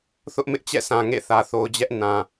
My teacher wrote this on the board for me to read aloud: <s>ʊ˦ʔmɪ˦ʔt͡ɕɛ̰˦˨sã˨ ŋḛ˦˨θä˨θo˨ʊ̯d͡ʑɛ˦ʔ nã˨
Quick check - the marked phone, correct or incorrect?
incorrect